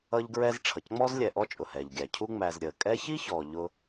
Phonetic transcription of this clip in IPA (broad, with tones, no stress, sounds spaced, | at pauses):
ʌ˦ ʎ ɡ ɹ ɛ˦ z ʈ͡ʂʰ ʌ˩ c ŋ͡m ɔː˥ z lʲ ɛ˨ ʔ ɔ˦ t͡ʃʼ ʊ˩ h ɛː˩ ʎ ɡʲ æ˩ cʰ u˥ ŋ͡m æ˨ z ɾʲ əː˩ kʼ ɛ˦ ç i˥ ç ɔː˩ ʎ ʊ˨